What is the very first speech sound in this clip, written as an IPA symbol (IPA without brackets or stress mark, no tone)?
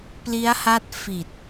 p